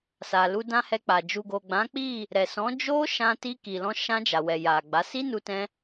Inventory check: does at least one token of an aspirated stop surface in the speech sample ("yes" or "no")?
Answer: no